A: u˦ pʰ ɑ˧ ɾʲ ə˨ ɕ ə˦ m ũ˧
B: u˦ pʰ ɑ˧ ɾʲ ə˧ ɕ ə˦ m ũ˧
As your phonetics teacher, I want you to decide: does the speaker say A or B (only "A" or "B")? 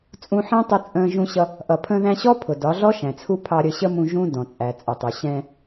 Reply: B